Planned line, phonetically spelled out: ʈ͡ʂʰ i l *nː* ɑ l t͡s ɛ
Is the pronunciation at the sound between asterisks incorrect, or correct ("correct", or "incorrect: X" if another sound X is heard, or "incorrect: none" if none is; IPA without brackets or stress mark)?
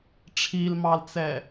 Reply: incorrect: m